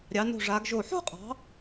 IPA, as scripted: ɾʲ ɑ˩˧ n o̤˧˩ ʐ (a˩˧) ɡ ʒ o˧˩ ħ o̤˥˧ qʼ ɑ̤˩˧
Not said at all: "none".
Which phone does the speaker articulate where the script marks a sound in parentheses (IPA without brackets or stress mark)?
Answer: a˩˧